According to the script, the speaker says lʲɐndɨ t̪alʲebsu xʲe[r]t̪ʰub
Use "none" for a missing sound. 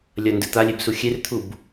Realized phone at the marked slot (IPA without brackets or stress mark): r